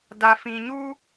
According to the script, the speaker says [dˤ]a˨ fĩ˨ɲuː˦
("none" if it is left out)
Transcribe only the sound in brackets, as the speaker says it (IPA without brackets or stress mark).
d